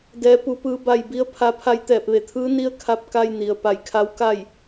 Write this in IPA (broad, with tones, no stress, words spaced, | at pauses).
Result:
dɛː˩˧ pu˩pɯː˩˧ ba˩j bi˧˥ə̯pʰa˧pʰa˧j t̪ɛː˧˩p̚ʋe˧˩t̪ʰɯː˧˥ ni˧˥ə̯ kʰa˧p̚ka˧j ni˩ə̯ pa˧˩jkʰa˧˥w ka˥˨j